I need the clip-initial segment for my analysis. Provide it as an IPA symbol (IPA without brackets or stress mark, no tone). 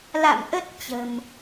l